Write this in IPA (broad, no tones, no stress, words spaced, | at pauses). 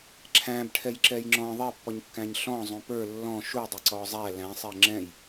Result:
ǁʰæ̃bʈʰɛj ǁɛjŋ͡ǁɔ̃ ðˤɛpːɔɲkːæ̃ɲ ɬɔ̃ zˤũpə˞ lːɔ̃ ʃudˤə ǀɔzˤæ læ̃sˤɛ ŋ͡ǁɛ̃j